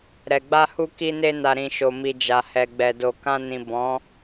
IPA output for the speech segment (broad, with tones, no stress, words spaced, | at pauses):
ɾɛ˨ɡ͡ba˧hu˧ ki˧ne˧na˨ɾĩ˨ ʃo˨mi˨d͡ʒa˨hɛ˨ ɡ͡bɛ˨do˨ kã˧nĩ˨ bɔ̃˨˦